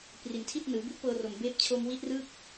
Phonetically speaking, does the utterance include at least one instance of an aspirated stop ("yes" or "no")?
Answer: yes